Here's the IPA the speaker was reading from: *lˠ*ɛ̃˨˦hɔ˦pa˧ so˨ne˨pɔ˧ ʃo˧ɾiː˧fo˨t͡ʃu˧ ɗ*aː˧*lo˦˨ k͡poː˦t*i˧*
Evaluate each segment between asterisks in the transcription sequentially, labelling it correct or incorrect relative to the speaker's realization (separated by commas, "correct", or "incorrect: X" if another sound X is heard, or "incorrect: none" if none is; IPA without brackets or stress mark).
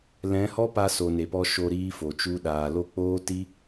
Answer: incorrect: l, incorrect: aː˨, incorrect: i˦